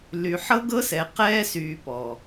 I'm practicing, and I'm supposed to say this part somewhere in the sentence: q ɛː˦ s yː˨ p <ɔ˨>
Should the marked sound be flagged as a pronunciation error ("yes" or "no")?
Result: no